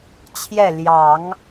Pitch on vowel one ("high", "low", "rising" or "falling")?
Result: falling